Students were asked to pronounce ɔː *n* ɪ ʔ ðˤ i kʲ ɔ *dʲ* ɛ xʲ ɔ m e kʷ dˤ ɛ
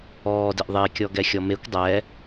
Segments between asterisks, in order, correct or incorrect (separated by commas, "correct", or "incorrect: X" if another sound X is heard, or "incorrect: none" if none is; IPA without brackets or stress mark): incorrect: d, incorrect: ɡ